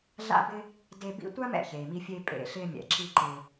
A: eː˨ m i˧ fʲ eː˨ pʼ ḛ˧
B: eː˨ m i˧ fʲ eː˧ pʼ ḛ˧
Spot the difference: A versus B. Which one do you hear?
B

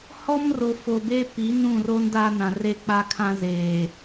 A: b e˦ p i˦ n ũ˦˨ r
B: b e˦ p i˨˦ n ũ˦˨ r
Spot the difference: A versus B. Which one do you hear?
B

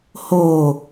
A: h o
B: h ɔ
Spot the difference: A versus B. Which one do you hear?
A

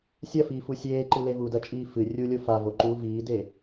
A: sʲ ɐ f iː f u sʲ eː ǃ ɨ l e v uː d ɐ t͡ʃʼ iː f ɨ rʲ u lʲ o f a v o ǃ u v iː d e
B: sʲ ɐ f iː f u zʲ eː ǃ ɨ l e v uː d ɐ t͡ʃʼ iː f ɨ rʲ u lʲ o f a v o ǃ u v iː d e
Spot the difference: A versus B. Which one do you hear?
A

